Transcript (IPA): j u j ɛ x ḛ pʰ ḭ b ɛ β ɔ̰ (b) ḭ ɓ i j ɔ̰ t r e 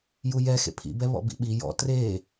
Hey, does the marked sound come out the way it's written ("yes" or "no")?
yes